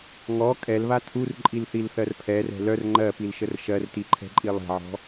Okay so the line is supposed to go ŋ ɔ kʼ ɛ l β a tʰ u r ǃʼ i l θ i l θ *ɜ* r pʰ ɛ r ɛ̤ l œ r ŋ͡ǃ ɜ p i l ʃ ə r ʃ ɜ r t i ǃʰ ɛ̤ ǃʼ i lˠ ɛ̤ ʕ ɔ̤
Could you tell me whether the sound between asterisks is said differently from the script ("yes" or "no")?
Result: no